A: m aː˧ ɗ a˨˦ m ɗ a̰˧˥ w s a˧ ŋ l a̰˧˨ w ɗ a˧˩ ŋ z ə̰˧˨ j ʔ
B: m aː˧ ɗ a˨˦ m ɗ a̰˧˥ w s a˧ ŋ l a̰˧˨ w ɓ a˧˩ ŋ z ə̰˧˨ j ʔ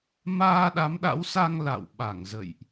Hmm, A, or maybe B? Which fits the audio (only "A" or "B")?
B